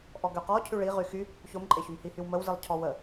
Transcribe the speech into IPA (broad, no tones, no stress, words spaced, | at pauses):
ʔɔɡøqɔ cʰyɭi ʁyxy | çomǃʼeçym hihywməwzilˠ cʰɔwə